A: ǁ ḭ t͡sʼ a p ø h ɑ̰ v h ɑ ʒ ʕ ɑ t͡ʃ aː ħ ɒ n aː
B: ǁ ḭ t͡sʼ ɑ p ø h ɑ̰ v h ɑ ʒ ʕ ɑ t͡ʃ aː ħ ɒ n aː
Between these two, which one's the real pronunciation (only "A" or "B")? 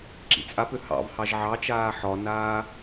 A